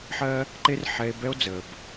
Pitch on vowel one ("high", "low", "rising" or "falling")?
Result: high